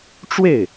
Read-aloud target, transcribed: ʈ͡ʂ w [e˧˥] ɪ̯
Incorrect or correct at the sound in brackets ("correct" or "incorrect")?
incorrect